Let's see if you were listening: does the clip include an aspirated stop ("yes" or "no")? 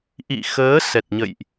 no